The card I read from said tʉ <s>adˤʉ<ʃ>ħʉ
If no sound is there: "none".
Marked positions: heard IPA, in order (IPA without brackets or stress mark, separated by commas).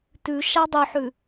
ʃ, none